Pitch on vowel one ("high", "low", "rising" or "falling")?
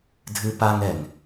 high